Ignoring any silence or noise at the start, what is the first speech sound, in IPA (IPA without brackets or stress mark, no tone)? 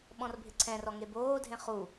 ɓ